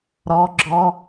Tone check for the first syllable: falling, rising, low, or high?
high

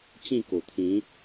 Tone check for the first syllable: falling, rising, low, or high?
falling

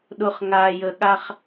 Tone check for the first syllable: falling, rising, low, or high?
low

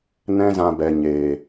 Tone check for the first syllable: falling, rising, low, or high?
high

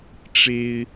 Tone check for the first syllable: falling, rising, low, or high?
high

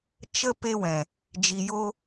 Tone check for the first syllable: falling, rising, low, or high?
high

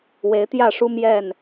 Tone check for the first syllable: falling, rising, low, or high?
rising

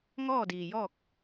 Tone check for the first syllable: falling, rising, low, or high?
falling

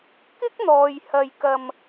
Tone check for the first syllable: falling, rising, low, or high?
high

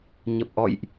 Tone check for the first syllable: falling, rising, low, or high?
low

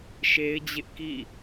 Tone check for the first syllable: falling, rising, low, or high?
high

